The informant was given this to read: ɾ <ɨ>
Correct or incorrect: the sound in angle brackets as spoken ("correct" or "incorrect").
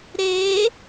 incorrect